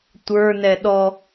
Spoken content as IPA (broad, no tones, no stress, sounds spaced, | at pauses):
tʷ ə˞ n ɛ ɗ ɔ